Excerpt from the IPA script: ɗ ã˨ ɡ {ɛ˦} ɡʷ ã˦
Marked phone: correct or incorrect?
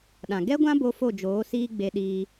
correct